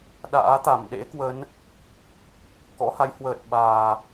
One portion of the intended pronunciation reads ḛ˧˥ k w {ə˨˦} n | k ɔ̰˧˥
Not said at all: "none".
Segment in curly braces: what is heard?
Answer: ə˨˦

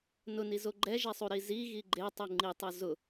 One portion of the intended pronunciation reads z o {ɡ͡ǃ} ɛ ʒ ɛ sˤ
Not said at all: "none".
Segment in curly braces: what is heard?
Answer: ɡ͡ǃ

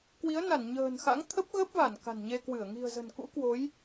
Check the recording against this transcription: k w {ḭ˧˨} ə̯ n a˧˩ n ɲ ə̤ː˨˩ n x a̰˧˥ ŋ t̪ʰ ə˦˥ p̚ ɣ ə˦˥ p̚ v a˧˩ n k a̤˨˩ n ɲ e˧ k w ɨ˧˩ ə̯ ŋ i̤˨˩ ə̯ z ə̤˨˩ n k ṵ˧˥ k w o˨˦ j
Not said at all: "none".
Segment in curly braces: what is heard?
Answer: i˨˦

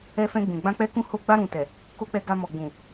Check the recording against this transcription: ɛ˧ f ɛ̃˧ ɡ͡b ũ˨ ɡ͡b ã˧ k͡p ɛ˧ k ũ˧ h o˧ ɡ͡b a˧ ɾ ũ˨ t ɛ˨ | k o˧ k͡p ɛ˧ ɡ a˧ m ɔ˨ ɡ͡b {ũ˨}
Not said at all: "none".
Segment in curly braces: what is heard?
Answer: ũ˨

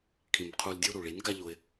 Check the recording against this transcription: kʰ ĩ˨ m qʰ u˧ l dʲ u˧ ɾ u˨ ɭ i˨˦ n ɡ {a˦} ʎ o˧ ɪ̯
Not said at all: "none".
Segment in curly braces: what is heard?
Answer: a˦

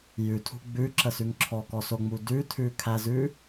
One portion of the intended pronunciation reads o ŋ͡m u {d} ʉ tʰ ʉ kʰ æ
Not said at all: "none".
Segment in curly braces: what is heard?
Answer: d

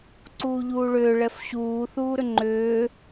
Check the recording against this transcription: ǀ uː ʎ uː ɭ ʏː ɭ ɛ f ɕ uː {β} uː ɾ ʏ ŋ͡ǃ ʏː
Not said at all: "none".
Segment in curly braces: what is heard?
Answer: θ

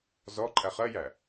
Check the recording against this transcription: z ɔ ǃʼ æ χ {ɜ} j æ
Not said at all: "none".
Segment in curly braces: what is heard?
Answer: ɜ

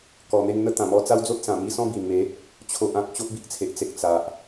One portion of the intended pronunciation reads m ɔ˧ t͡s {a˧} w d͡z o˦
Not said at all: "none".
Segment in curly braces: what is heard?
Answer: a˦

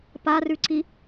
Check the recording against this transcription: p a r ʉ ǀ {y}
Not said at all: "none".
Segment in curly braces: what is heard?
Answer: i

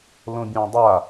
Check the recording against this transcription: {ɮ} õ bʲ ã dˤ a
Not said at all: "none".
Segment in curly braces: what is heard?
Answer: l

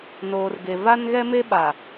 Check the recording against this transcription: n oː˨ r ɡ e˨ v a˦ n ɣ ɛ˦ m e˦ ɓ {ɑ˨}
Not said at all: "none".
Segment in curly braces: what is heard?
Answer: a˨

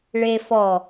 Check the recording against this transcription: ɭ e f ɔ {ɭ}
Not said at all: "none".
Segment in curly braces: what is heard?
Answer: none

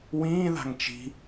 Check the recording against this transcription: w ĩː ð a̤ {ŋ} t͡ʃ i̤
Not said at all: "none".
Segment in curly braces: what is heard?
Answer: ŋ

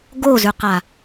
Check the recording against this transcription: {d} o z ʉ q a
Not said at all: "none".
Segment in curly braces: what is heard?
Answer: ɡ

